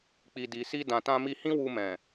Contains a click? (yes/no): no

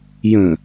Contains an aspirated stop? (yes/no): no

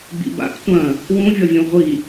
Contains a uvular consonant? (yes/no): yes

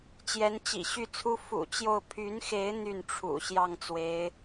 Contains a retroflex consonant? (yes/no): yes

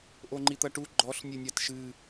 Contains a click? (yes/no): yes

